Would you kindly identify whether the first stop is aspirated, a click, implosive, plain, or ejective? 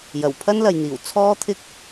aspirated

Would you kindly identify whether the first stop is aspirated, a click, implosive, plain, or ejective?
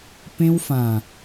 plain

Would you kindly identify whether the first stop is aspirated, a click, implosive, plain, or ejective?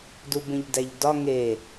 plain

